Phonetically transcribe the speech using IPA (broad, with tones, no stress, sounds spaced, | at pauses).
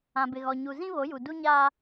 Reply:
ã˨ b ɪ˨ ɣ ɔ˨ ɲ u˨ z ĩ˦ β o˨˦ j u˨ d u˦ ɲ aː˦